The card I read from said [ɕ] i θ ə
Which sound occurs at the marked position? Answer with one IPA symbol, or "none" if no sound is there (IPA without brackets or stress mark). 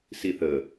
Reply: s